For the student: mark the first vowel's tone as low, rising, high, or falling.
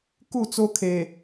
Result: falling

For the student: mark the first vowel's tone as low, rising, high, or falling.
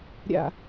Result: low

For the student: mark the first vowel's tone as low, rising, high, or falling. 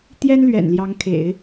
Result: high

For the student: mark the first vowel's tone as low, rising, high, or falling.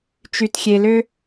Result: low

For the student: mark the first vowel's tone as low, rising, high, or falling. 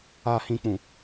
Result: low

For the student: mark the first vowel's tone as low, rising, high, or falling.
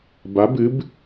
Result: rising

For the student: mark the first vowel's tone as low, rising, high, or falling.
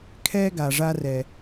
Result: high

